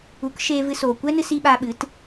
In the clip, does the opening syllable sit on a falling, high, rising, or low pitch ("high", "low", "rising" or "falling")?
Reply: rising